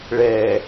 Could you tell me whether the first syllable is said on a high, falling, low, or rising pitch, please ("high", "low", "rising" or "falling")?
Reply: low